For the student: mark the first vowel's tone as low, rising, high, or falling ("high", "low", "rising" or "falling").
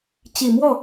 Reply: low